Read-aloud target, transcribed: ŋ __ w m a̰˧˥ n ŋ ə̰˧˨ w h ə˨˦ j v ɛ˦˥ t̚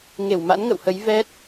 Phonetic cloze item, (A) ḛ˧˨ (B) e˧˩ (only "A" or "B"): B